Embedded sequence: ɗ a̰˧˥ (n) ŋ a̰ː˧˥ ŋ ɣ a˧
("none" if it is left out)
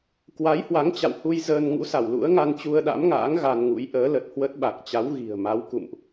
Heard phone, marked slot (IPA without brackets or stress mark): m